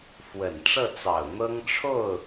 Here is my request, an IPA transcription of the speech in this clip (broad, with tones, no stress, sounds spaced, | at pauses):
f w ə˨˩ n ʈ͡ʂ ɤ˥˩ t͡s ɑ˨˩ ʊ̯ n̪ ɤ˥ ŋ ʈ͡ʂʰ o˥˩ ʊ̯